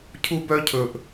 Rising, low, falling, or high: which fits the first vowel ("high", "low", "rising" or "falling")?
high